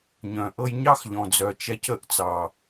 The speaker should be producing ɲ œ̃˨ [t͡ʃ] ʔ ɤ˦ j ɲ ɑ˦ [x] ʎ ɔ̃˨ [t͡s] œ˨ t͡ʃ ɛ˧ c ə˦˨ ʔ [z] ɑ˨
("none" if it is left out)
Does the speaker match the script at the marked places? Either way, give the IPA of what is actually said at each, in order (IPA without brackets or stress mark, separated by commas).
none, x, d͡z, t͡s